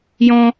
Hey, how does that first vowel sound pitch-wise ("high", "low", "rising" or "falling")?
high